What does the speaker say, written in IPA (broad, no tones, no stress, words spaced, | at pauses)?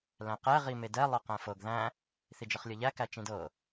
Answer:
læ̃qɛ ʁimedɛ lˠɤqæ̃fɤɡ ðæ̃ | θid͡ʒɤχlʲɤʎæ kæt͡ʃĩdɤ